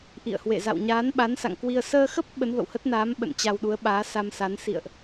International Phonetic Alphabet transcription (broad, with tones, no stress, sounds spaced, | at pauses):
ʔ ḭ˧˨ ə̯ h w ḛ˧˨ z a̰˧˨ w ɲ aː˨˦ n ɓ a˨˦ n s a̰˧˨ ŋ k w i˧ ə̯ s əː˧ x ə˦˥ p̚ ɓ ə˨˦ n v ə̰˧˨ w h ə˦˥ t̚ n aː˨˦ m ɓ ə̰˧˨ n t͡ɕ a˧ w ɗ u˨˦ ə̯ ɓ aː˨˦ s a˧ m s a˨˦ n s ḭ˧˨ ə̯ ʔ